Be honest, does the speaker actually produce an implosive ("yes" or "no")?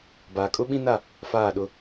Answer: yes